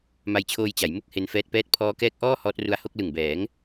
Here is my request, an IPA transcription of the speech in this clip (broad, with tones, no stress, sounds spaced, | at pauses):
m a˧ j t͡ɕʰ oː˧ j t͡ɕ a˩˦ j m u˥˩ k̚ h e˦˥ n f ɛː˦˥ t̚ p ɛː˥˩ t̚ pʰ ɔː˦˥ k ɛː˦˥ k̚ ʔ ɔː˥˩ h ɔː˦˥ t̚ r u˧ a̯ h o˥˩ k̚ l ɯ˨˩ ŋ b ɛː˩˦ ŋ